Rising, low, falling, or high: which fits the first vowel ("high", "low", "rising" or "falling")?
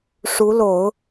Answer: rising